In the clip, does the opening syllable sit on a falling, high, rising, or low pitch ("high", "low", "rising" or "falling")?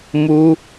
high